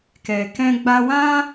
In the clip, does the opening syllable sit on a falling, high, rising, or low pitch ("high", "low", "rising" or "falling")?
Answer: low